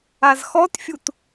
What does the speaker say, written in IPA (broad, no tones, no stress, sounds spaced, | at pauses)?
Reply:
a z x ɔ t fʲ u t